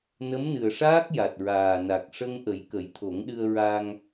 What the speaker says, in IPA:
n ə˧˥ m n ɨ˨˩ ə̯ ʂ aː˦˥ k̚ j a˨˩ t̚ ɹ aː˨˩ n a˨˩ k̚ ʂ ə˧ ŋ ʔ ə˨˩˦ j k ə˨˩˦ j t̪ʰ o˨˩˦ ŋ ɗ ɨ˧ ə̯ ɹ a˧ ŋ

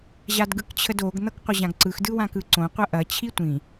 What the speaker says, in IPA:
ʑ a d ɡ ɯ k t͡ɕʰ ə d o ɡ n̪ ʌ k qʷ ə ʑ ã ɡ ǀ ɯ x d ɯ w ã k ɯ ǀ õ qʷ ɐ ʔ ɐ t͡ɕʰ i tʷ ĩ

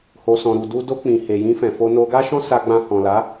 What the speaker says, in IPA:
h o˨ s ɔ̃˨ ɾ u˨ d u˧ d o˧ k͡p ĩ˨ h e˨ j ĩ˧ f ɛ̃˨ f o˧ n o˧ ɡ a˦ ʃ ɔ̃˦ s a˧ ɡ͡b ã˧ h ɔ̃˨ l a˨˦

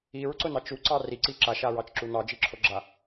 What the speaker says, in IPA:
i ɹ ǀ ʊ n ɑ t͡ʃ u ǀ ɑ r i ǀ i ǁ a ʃ a ɹ ɑ t͡ʃ ǁ u n ɑ d͡ʒ i ǁʰ o ɡ͡ǁ a

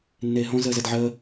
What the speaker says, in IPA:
nː eː ɦ õ z əː z ɐ d ʕ əː

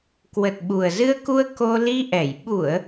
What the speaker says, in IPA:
k w ə˨˩ t̚ ɓ u˨˩ ə̯ z ɨ˧ ə̯ k u˧ ə̯ k o˧ l i˧ ʔ ɛ˧˩ j ɓ u˧˩˨ ə̯

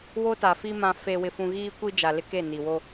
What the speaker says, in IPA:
w o˦ t a˨ f i˦ m ã˨ f e˨ w ɪ˨ f ũ˨ ɣ iː˦ kʷ i˦ d͡ʒ a˨ l ɪ˦ k e˦˨ n i˨ w o˦

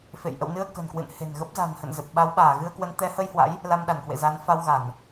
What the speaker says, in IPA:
f ḛ˧˨ j ʔ ə̰˧˨ w n ɨ˧ ə̯ k ə̤˨˩ n k w ɨ̰˧˨ n h e̤˨˩ n ɣ ə˦˥ p̚ z a̤˨˩ n h ə̰˧˨ n z ə˨˩ p̚ ɓ a˨˦ w ɓ aː˧˩ ɣ ɨ˧ ə̯ k w ə˨˦ n t̪ ɛ˨˦ h ə˧ j h w a̰˧˥ j | l a˧ m ɗ a˧˩ n k w ḛ˧˨ z a˨˦ n f a˧ w ɣ a˧˩˨ n

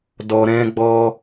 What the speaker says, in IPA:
d ɔ˧ ɾ ɛ̃˦ ɡ͡b ɔ˦

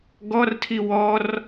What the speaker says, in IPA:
ɡ ɔ r tʰ i w ɔ r

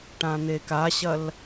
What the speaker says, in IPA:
ʈ ã n̪ e k a ɕ ɐ l

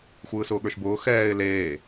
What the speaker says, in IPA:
xʷ ɯː s ʊː ɠ ə˞ ʃ b ʊː x ɛː ɪ̯ l eː

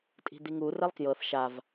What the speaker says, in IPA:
tʼ i̤ d̪ i ŋ u r ɛ lˠ k j ɤ θ ʃ a v

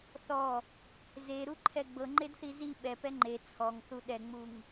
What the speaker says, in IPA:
θ ɔ | z e ɾ u ǃʰ ɛ ɡ͡b ɤ ŋ͡ǃ e d θ i z i ɓ ɛ p ɛ ŋ͡ǃ e t͡sʰ ɔ ŋ θ u ɗ ɛ ŋ͡m u ŋ

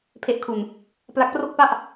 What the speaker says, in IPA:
pʰ e˦˥ ʔ kʰ u˧ n | p l a˦˥ k̚ p r o˥˩ k̚ p a˥˩ ʔ

